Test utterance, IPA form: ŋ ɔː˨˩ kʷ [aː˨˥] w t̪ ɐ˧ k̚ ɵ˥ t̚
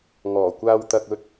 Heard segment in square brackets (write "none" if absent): aː˧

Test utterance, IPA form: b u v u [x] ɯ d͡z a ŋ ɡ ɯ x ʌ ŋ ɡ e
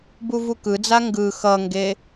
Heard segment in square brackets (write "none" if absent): k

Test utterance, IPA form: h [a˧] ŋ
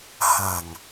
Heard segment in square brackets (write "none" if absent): a˨˩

